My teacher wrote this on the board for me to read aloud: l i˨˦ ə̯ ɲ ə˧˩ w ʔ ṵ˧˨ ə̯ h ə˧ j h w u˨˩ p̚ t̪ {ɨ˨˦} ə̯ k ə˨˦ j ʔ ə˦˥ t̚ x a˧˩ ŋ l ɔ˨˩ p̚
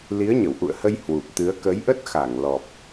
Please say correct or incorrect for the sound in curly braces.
correct